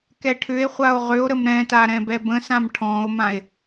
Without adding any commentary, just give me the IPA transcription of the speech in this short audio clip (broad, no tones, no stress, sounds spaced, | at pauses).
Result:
k ɛ ʈʰ ʏ e̯ χʷ a o̯ ʁ ʏ o̯ ɾ ə m ɾ ɛ̃ t a ɾ ɛ̃ b ɛ b ə̃ s ã m ʈʰ ɔ̃ o̯ m ã e̯